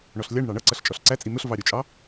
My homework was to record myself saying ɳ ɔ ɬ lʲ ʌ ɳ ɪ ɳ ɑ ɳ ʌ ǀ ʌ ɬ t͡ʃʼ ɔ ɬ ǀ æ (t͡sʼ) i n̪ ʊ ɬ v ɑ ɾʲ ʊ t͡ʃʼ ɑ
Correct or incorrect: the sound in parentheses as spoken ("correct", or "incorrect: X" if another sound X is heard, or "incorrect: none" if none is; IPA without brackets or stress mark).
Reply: correct